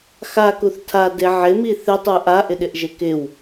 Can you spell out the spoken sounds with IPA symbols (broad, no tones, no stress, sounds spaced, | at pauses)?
x a k u θ tʰ a d e ʕ ɪ m i θ ɪ tˤ u ʔ a ʔ ɪ ɗ ɪ ʔ ʒ e k ɪ w